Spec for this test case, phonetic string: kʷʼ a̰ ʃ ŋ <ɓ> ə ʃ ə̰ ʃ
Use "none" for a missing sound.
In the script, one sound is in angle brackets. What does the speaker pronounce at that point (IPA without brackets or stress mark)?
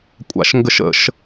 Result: ɡ